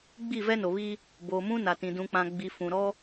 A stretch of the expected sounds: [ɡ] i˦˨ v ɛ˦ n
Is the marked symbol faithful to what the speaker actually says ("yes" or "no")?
no